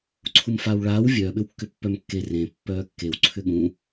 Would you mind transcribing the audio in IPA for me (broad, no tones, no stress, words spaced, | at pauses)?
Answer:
ǀʰumfaːwɭaːw vʲœːɓʏwkːʏ pːœmkːe rẽ pːœːkːew ǀʰʏɠũ